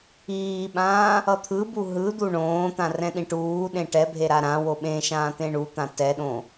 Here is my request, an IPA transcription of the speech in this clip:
iːɓãː | ʌt̪ʰɯbu ɦɯ d̪uɳõːt̪ã rɛ̃ɗĩʈuːɗẽ ʈɛbʱe ɾaɾãwo ɓẽʃãː t̪ẽɳut̪ã tɛɗõ

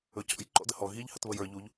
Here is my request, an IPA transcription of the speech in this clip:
ɵcɔ̰j ǃɔ̰dəhɔ ɣiʎ hətβəjə˞ ʎuʎ

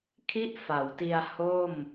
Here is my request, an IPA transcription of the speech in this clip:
kʰi˥˩ʔfa˩˦wti˧a̯ ho˥˩m

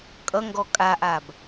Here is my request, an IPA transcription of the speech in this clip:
kʼʌŋɡɔ kʼaʔab

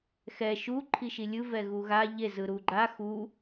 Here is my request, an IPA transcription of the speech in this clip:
xɛ ʃu ǃʰiʃilʲɯ vɛɣuɣa ʎe zɯɾuɡ͡ǃa xu

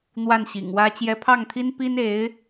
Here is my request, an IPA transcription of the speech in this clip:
n̪wa˥˩nɕḭ˨˩ŋwä˥ t͡ɕjɛ˧˥pʰɑ˥˩ŋt̪ʰi˥n pi˥ne˧˥ɪ̯

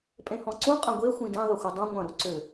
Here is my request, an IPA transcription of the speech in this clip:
pʼẽhɔ̃ǀũ qʼɐ̃ɡʷe xʷĩdẽ ðˤʏxʷɘdˤũ ŋʷɐ̃ ɾuǀʏ

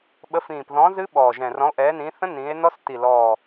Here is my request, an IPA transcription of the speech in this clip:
ɓə˨˦fĩː˨˩pðɔ̃˨˦ zɨ˦˥ɓɔː˨˩ʒɛ̃˨˩ rɔ̃˨˦o̯ʔɛː˨˦nĩː˨˦θə̃˦˥ nĩː˨˦e̯nɔ˦˥s ti˨˩lɔː˨˩

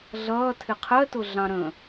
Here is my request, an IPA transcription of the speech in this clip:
ɮʌːtʰɪ qʰɜtʊɮɑ̃ ɾə̃

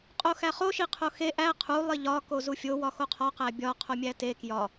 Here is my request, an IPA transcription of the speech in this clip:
qʼoxæχo ʃiqʰoxe ʔæ qʰu lˠiʎɒ kozufʲo wɒxoqʰɒ qæbʲɒ qʰomʲæte kjɒ

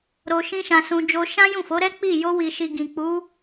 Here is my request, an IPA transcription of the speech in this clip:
ɾo˧ʃĩ˦ʃã˧sũ˧ d͡ʒo˧ʃã˦jũ˦˨fo˨˦ ɾɛ˦k͡pi˦˨ jo˧wi˨ʃi˨ ɡĩ˨k͡pu˨˦

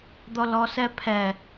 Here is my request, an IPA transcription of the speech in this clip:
d̪ɔlɔsɛpʰɛ

